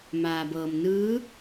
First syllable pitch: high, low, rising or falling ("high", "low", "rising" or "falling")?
low